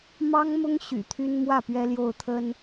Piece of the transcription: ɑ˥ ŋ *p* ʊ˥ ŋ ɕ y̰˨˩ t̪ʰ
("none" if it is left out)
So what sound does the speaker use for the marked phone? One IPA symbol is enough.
m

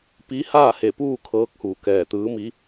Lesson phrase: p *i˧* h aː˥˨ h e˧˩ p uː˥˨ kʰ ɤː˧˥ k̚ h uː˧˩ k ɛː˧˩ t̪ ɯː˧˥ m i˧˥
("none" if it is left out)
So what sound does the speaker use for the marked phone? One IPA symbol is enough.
i˧˥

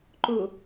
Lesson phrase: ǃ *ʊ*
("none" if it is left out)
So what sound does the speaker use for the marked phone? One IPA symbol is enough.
ʊ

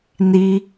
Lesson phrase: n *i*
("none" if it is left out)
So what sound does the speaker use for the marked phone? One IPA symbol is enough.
i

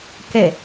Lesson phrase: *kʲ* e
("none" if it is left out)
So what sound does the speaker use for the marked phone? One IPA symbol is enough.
k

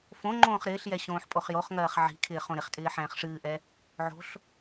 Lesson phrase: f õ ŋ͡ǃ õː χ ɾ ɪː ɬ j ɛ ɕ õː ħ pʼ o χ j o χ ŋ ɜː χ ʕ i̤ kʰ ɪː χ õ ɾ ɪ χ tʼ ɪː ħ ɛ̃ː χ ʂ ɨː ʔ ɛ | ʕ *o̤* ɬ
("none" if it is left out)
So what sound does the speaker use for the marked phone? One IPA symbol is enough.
o̤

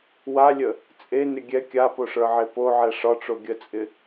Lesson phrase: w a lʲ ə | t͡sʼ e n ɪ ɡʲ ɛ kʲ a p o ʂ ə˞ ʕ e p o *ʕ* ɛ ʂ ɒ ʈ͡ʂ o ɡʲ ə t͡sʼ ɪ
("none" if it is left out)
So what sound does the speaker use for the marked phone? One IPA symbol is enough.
ʕ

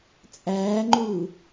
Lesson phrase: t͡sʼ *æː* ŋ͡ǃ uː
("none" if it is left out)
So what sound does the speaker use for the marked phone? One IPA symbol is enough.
æː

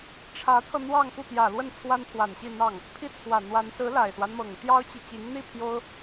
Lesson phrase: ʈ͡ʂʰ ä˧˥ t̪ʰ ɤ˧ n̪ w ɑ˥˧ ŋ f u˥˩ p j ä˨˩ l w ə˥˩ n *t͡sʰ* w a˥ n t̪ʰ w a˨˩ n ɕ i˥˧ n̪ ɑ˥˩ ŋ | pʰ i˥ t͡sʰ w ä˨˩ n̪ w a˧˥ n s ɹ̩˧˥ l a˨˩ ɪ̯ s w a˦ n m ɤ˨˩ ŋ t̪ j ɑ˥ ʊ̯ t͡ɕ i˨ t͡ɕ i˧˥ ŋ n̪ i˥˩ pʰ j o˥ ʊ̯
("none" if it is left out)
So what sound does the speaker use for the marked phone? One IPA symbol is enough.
t͡sʰ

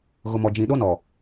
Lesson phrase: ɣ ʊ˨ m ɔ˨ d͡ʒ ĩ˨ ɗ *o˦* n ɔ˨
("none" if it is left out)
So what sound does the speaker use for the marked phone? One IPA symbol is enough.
o˦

